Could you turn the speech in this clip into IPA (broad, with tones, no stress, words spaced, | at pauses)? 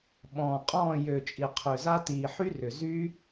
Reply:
ɓɔ̃ː˨qʼɔ̃ː˦˨ jø˨t͡ʃʼi˨ qʰø˨za˧tiː˨ ħy˦rʏ˨zyː˦